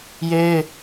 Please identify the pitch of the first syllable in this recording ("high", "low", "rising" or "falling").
high